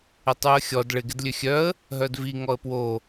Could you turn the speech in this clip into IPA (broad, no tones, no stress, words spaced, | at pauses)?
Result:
ɪtˤyə̯xʲɔd ɭɪ ɡɪdlʲøxʲœə̯ | ɦœdvi ŋɔə̯pwo